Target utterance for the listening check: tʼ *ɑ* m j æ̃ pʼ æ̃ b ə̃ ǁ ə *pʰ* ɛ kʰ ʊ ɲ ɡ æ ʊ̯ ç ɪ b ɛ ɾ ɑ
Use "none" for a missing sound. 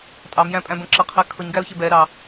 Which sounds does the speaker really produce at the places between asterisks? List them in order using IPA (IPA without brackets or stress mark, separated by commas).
ɑ, qʰ